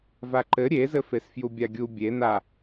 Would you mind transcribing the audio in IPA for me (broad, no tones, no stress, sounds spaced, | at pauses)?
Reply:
v a ǃ ɘ ɾʲ e z ɘ f e s f j u bʲ a ɡʲ u bʲ e n a